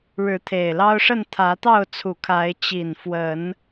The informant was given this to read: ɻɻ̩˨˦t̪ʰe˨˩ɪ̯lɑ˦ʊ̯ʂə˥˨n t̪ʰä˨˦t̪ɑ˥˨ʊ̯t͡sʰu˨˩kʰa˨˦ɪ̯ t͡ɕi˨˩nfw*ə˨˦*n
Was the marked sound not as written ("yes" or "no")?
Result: no